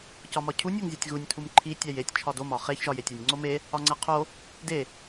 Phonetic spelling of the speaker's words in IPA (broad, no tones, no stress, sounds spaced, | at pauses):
c ɒ m ɒ cʰ u nʲ o ŋ zʲ o tʲ ɣ u nʲ tʰ u m ǃʰ i tʲ æ j e tʲ t͡ʃʰ ɒ d o m ɒ χ e ç ʒ ɒ j e tʲ ɒ nʲ ŋ͡ǀ o m e | ɒ ŋ͡ǀ æ qʰ o | d e